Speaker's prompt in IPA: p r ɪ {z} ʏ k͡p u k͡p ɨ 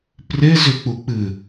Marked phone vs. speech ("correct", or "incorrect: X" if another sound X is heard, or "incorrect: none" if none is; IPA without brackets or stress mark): correct